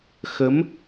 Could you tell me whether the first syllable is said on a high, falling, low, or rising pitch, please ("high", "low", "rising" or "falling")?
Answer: rising